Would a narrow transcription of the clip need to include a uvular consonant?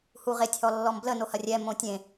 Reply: yes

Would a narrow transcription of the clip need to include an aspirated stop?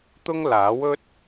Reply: no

